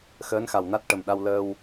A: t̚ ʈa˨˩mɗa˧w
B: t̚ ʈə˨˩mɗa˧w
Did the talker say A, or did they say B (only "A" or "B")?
B